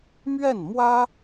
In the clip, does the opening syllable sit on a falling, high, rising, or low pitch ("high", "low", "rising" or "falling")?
falling